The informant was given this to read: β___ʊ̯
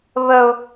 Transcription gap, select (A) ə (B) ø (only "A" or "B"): A